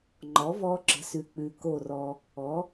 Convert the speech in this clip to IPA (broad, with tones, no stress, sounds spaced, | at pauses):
ŋ͡ǃ ɔ˩˥ v ɔ˧ ǁ ə̤˩˥ s ʉ˩ k͡p ʉ˩ k o˥˩ r ɔ˧ | ɔ˩˥